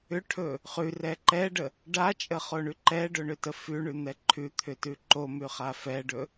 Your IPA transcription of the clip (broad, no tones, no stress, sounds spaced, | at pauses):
ʏ ʈʰ ɵ | χ ʉ r ɛ ǃ ɛ ɖ ə | ɖ a t͡ʃʼ ə χ o ɳ ʉ ǃ ɛ ɖ ɵ ɳ ʏ t ə f ʉ ɳ ʉ n̪ ɛ ǃʰ ʉ t̪ʰ ʏ t ʉ ǃ o m ʉ χ a f ɛ ɖ ɵ